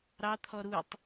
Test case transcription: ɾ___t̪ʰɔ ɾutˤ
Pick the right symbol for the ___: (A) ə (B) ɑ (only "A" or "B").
B